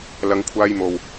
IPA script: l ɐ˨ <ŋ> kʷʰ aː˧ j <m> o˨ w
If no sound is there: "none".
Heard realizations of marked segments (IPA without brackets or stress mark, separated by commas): ŋ, m